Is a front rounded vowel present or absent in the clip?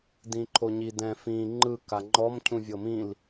absent